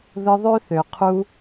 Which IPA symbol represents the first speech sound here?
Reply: ð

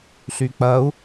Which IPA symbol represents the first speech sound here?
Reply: ɬ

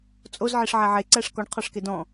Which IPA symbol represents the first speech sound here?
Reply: t͡sʼ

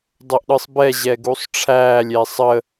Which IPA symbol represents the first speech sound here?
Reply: dˤ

